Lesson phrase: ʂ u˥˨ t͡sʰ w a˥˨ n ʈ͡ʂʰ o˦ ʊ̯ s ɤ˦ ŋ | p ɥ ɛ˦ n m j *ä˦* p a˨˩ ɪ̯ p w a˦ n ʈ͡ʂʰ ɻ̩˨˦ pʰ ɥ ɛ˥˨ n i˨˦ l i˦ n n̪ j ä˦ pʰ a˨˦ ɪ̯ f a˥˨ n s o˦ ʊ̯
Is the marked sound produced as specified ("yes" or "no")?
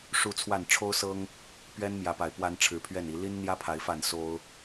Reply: no